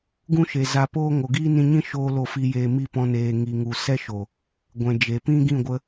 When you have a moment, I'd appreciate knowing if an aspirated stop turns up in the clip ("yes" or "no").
no